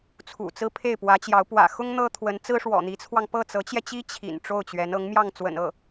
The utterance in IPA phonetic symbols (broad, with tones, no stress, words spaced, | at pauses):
t͡sʰṵ˨˩t͡sɹ̩˥pʰe˥˩ɪ̯ pwä˧˥t͡ɕjɑ˧˥ʊ̯ pwä̰˨˩xʊ˥ŋ n̪ɤ˥t̪ʰwə˧˥n t͡sɹ̩˥ʂwɔ̰˨˩n̪i˧˥t͡sʰwɑ˧ŋ pɤ˥˩t͡sɤ˧˥t͡ɕjɛ˧t͡ɕi˥ t͡ɕʰḭ˨˩n ʈ͡ʂo˥˩ʊ̯t͡ɕɥɛ˧˥n ɤ˧˥ŋmjɑ˥˩ŋ t͡swə̰˨˩n ɤ˥˩